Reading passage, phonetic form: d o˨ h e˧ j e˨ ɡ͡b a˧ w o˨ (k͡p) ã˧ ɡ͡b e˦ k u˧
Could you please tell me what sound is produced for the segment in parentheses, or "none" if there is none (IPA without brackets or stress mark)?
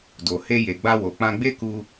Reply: k͡p